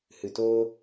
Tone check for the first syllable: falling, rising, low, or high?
low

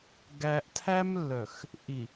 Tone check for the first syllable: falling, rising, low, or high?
low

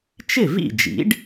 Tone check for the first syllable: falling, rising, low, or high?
falling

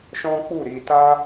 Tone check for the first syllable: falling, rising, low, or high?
high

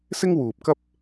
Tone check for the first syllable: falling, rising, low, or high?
high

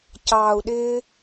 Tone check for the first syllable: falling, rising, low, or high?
low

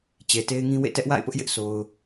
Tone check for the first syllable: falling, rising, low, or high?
low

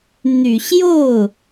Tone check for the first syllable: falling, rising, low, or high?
low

